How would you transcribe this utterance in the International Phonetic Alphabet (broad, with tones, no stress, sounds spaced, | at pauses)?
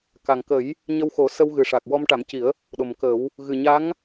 k a˨˩ ŋ k ə˨˩˦ j | ɲ ə˧ w x o˨˩˦ s ə˧ w ɣ ɨ˨˩ ʂ a˨˩ k̚ w ɔ˧ m ʈ a˨˩˦ m c i˨˩˦ ə̯ | ɗ o˨˩ m k ə˨˩˦ w | ɣ ɨ˨˩ ɲ a˧˥ ŋ